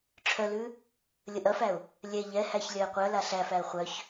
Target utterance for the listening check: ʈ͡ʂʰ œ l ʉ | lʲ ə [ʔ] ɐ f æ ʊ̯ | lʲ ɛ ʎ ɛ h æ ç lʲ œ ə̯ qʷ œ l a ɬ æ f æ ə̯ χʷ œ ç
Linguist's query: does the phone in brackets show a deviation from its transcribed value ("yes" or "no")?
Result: no